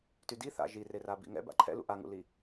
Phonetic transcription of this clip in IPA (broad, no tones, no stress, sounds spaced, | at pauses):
t y d i θ a̰ ʒ i r e r a b ḭ ŋ ɛ̰ b a̰ ǃʰ ɛ̰ l ṵ ʔ a ŋ ṵ l i